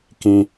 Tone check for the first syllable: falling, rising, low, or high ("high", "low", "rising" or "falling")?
high